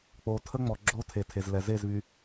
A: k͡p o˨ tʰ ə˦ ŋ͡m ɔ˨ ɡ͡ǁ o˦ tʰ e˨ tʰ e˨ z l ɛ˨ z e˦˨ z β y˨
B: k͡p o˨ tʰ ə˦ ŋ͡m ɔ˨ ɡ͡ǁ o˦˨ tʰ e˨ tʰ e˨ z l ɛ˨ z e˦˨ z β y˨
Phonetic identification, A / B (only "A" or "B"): A